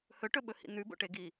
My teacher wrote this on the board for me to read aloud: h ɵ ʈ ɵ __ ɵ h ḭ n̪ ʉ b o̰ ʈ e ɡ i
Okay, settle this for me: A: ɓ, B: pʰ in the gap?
A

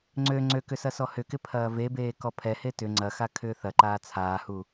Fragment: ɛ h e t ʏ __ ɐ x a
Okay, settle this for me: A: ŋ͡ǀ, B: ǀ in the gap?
A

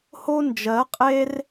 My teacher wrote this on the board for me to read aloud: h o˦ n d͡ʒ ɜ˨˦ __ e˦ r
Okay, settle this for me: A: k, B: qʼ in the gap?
B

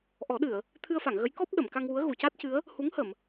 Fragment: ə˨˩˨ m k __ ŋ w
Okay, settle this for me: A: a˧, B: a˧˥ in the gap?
A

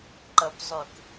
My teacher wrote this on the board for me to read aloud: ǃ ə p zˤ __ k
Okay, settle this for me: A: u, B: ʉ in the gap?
B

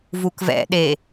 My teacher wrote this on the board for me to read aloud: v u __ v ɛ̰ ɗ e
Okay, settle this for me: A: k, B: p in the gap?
A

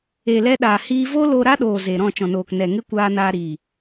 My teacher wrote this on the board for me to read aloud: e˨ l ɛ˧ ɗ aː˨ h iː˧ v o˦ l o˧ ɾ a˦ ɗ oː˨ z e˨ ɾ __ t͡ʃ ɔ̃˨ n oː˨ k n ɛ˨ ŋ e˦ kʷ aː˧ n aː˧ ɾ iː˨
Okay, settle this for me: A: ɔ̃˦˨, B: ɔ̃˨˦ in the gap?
A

